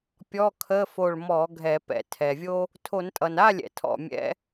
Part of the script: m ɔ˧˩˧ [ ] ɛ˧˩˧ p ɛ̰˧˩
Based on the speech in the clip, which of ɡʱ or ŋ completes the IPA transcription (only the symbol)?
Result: ɡʱ